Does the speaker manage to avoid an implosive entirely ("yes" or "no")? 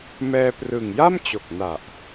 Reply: yes